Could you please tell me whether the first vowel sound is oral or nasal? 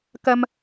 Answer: oral